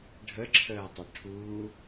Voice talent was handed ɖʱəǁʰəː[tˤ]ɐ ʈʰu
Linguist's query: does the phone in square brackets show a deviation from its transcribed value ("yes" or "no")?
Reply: no